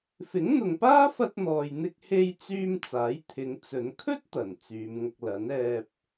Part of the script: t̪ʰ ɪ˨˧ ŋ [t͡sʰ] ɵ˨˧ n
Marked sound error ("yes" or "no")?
yes